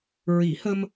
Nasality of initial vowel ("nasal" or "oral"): oral